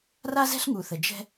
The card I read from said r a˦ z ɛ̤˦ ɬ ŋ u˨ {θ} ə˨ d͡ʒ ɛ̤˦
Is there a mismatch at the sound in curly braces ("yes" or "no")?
no